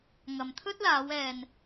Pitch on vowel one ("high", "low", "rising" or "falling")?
low